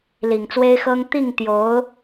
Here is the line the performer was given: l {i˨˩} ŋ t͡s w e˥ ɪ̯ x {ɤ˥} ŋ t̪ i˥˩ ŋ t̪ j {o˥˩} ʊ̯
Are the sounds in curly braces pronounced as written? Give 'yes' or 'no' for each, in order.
yes, yes, no

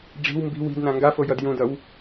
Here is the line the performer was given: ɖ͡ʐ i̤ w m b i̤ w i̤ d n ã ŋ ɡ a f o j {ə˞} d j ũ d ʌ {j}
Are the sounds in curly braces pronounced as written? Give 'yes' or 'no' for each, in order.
no, no

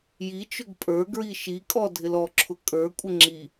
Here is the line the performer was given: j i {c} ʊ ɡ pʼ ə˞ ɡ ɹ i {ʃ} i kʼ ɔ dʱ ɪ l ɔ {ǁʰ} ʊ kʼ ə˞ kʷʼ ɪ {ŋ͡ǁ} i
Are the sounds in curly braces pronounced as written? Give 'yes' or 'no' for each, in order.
no, yes, yes, yes

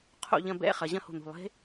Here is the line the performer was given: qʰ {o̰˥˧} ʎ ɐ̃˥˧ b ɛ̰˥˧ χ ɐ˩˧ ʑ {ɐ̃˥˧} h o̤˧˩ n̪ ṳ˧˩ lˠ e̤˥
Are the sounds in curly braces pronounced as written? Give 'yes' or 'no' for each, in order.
yes, yes

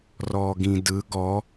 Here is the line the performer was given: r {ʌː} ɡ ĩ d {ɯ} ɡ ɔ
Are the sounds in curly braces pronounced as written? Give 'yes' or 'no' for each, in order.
no, yes

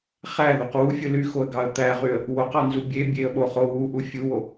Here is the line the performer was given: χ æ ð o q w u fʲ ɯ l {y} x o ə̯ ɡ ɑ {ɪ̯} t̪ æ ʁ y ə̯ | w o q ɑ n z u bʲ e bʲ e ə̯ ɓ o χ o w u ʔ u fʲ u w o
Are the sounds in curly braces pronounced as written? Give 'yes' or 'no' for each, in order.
yes, no

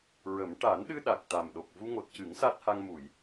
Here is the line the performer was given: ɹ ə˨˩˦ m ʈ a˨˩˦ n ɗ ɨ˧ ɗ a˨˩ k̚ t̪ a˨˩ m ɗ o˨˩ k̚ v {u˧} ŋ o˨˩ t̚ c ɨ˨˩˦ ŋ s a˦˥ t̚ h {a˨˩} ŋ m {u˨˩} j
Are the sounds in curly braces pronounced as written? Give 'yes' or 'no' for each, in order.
yes, no, no

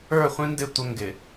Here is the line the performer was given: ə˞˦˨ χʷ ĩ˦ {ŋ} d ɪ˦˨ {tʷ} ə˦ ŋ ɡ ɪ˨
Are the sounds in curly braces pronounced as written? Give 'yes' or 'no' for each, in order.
no, yes

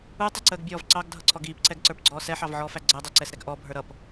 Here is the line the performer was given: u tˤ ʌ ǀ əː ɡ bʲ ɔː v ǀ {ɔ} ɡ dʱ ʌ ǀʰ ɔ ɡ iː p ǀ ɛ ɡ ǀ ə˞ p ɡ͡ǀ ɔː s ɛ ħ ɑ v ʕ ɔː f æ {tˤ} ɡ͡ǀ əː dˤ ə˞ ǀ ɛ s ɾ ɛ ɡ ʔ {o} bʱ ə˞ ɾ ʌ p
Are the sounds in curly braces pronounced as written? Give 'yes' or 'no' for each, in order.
no, no, no

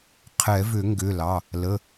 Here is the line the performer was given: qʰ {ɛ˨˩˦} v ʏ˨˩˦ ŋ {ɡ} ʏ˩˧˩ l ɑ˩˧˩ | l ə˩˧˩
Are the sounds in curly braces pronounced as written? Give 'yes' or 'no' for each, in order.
yes, yes

